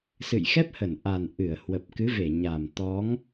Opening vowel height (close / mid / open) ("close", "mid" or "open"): close